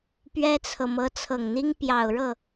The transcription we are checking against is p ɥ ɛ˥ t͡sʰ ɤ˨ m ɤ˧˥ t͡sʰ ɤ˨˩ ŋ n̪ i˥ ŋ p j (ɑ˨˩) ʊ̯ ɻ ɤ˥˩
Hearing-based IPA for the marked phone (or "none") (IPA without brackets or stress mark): ɑ˨˩